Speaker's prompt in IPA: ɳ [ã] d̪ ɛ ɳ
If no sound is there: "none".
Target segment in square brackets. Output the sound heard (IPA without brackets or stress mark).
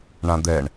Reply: ã